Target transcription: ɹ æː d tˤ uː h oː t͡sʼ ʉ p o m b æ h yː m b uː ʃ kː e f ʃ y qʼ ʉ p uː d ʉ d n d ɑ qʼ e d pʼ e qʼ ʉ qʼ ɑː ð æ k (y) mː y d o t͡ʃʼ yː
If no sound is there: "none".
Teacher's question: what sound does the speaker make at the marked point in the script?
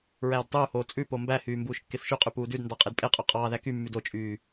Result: y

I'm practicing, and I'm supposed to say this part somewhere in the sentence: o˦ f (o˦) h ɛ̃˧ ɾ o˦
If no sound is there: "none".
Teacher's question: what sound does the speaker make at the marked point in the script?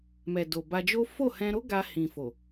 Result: o˦˨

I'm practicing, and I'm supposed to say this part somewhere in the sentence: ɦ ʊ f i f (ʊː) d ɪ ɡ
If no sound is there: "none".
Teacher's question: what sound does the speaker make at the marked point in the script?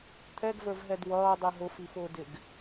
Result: ʊː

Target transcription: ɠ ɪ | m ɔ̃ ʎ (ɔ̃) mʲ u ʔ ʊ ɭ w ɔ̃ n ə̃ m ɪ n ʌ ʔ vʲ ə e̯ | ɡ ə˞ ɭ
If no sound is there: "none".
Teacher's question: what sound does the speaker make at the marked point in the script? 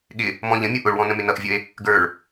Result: ə̃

